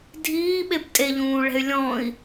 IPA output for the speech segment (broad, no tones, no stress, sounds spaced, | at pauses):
dʱ iː ɓ e b tʼ e ʎ ũː ɭ ɛ̤ y̯ lʲ ɔ̃ i̯